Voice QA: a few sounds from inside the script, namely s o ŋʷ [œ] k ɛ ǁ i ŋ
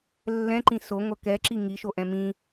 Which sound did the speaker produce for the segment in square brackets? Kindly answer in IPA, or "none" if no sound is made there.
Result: œ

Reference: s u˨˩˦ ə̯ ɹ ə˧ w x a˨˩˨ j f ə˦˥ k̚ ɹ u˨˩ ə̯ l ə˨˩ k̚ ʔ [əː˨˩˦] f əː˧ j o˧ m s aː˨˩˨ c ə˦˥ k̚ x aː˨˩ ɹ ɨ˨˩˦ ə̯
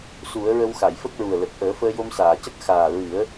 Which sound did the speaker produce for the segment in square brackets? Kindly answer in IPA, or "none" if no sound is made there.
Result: əː˨˩˦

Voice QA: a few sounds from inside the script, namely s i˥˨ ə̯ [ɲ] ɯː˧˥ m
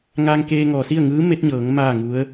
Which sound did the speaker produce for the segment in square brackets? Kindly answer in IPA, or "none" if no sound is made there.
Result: ŋ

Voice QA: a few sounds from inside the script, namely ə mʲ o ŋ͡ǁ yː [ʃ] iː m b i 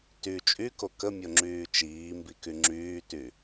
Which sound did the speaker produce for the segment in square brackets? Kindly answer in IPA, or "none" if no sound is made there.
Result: t͡ʃ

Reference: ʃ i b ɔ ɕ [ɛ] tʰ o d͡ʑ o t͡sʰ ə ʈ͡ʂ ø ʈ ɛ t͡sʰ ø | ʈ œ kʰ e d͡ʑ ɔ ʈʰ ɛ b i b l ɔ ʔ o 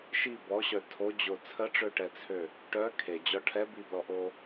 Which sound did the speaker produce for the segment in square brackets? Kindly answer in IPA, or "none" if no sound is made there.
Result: œ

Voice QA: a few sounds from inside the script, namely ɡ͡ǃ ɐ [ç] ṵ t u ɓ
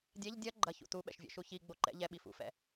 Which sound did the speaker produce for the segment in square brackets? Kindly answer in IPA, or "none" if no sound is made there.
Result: ç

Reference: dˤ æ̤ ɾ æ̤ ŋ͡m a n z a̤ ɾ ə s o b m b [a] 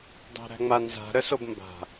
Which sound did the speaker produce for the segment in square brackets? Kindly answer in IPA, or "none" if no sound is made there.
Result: a̤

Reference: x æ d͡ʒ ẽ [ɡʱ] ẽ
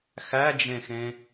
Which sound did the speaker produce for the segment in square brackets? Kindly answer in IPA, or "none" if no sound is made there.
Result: x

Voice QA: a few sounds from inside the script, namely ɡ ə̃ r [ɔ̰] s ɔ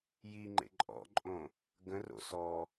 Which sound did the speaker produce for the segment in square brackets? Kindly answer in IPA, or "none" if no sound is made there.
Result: o̰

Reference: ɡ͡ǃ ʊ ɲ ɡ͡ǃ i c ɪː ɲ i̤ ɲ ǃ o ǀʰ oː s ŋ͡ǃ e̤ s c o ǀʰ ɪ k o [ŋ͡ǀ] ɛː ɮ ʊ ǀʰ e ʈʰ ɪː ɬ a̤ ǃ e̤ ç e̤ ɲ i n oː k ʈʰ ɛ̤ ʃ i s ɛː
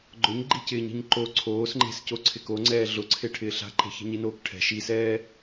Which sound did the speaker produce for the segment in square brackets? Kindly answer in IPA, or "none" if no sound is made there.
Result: ŋ͡ǀ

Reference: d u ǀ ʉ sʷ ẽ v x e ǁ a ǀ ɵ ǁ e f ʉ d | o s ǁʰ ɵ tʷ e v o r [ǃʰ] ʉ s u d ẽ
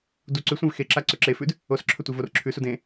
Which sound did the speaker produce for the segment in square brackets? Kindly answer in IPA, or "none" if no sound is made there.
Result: ǁʰ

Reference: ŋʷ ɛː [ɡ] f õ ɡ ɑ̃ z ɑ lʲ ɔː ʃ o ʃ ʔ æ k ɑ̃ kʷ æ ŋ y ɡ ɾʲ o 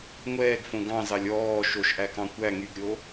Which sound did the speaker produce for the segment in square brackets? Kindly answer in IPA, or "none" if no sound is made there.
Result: ɡ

